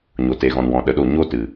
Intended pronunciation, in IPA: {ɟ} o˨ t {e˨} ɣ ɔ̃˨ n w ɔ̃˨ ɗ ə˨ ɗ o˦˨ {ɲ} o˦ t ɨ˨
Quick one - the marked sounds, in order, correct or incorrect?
incorrect: ɲ, correct, correct

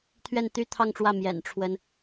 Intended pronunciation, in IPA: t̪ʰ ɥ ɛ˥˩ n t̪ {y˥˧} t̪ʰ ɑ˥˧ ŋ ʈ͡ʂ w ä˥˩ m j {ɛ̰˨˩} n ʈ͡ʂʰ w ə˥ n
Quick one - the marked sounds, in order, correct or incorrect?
incorrect: y˥, correct

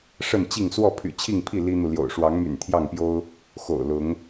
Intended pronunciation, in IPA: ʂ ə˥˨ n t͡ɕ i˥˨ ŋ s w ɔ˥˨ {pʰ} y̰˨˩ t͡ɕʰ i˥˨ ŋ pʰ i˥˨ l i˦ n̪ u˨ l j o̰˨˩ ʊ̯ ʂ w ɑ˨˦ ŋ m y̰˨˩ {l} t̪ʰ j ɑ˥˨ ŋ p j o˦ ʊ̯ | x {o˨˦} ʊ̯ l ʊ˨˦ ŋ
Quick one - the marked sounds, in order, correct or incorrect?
correct, incorrect: n, incorrect: o̰˨˩

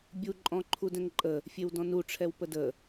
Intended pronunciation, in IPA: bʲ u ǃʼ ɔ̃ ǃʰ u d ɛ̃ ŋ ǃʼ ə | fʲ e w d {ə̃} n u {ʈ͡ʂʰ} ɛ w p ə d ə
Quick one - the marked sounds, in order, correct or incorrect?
incorrect: ɔ̃, correct

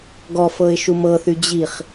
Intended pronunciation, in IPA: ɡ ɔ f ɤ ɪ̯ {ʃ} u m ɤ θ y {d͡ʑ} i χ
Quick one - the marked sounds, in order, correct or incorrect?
correct, correct

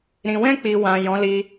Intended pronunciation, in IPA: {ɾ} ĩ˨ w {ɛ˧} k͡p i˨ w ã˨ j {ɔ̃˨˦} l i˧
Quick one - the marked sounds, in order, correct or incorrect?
correct, incorrect: ɛ̃˧, correct

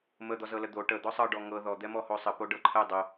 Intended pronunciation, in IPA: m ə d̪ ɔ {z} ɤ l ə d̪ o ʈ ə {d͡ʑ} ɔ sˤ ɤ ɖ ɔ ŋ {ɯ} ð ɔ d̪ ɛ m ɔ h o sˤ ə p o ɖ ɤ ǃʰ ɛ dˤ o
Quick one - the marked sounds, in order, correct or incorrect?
correct, incorrect: d̪, incorrect: ɤ

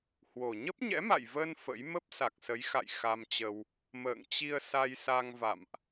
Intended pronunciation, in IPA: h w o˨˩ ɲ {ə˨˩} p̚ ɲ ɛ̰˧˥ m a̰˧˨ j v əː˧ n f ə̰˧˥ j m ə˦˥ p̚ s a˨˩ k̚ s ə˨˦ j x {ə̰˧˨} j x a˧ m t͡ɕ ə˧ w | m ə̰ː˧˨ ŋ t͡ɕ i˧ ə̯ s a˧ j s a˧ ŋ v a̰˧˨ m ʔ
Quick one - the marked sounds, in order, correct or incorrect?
incorrect: ə˦˥, incorrect: a̰˧˨

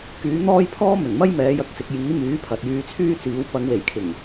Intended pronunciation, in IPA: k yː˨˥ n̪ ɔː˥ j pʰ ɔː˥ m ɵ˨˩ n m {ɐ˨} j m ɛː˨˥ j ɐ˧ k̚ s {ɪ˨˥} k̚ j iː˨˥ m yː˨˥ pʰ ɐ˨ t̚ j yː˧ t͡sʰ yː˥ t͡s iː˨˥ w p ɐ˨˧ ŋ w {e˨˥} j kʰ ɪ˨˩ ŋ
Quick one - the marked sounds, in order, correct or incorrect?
incorrect: ɐ˥, incorrect: ɪ˧, incorrect: e˨˩

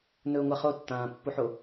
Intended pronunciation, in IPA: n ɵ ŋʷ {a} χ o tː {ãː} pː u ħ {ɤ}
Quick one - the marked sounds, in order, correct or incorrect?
correct, correct, incorrect: o

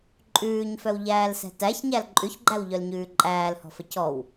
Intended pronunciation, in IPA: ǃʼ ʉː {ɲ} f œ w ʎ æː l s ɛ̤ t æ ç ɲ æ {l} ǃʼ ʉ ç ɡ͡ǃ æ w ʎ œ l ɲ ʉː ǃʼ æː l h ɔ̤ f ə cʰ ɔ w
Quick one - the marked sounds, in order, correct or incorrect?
correct, correct

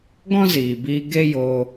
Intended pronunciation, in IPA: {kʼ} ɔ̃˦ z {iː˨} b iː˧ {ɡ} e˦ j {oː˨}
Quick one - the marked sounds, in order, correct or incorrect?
incorrect: ɡ, correct, correct, incorrect: oː˧

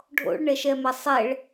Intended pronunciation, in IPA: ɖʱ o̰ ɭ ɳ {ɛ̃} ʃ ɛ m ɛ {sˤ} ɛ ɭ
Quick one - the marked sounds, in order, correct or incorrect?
incorrect: ɛ, correct

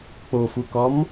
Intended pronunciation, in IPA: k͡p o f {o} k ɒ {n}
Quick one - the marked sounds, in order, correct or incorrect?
incorrect: u, incorrect: m

